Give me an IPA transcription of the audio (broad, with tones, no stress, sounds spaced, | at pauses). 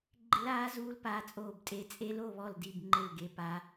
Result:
ɡ͡ǃ ɪ˦˥ l aː˦˥ z uː˦˥ l p aː˦˥ t͡sʼ oː˥˧ b tʼ e˦˥ t͡sʼ e˦˥ l o˥˧ β ɔ˥˧ l d i˥˧ b ŋ͡ǃ ɪ˥˧ l ɡ e˦˥ p aː˦˥